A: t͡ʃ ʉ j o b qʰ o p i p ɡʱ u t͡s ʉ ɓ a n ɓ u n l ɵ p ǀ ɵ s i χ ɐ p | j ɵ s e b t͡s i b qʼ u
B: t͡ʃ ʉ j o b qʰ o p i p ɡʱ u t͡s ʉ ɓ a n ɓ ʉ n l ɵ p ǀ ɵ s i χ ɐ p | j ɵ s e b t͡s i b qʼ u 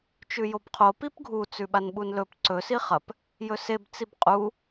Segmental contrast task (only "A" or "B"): A